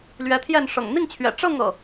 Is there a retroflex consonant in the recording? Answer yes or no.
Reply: yes